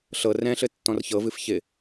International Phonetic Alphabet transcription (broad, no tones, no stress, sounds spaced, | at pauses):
ɬ ɤ r ɛ̃ ɬ ɘ tː ɔ̃ r ç ɤ v ɨ f ç ɪ